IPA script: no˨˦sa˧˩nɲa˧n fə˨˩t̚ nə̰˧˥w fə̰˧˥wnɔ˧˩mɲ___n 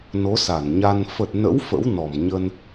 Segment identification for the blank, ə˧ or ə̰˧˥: ə˧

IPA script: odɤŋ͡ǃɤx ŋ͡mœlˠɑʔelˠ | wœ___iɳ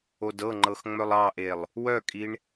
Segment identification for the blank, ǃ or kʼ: kʼ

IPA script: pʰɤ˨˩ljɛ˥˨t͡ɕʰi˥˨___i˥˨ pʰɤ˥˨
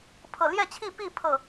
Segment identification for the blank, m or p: p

